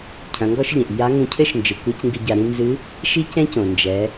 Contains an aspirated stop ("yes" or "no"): yes